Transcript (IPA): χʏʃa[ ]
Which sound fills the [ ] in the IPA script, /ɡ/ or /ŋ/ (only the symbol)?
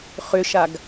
ɡ